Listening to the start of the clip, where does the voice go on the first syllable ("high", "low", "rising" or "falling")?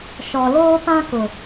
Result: low